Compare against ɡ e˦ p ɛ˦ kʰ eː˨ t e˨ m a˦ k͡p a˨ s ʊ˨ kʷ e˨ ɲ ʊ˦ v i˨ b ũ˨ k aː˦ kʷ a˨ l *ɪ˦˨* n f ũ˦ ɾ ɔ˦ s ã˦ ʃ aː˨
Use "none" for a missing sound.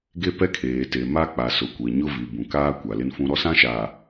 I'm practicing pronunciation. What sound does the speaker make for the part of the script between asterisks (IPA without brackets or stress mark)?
ɪ˦